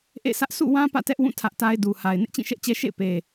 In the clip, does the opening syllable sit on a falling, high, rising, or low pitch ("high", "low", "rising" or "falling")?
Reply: falling